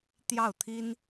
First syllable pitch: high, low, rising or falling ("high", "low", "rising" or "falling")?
falling